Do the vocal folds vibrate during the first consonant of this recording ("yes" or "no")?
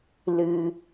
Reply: yes